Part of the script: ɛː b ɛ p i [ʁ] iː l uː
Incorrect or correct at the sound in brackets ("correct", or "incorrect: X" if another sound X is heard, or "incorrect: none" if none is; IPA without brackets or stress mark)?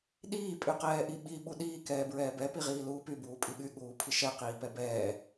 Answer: correct